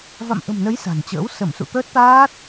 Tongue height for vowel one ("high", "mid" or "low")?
low